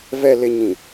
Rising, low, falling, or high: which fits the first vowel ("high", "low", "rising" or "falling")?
low